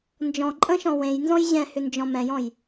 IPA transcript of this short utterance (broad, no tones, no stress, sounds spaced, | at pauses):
n d͡ʒ ɔ̃ ǃʼ ə̃ ʃ ɔ̃ w ẽ j n z ɔ̃ j ʑ ɛ̃ h ʏ n d͡ʒ ɔ̃ m ɛ̃ j ɔ̃ j